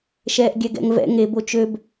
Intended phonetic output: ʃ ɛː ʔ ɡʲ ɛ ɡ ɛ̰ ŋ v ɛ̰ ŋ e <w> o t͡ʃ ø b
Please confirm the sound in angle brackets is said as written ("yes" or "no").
no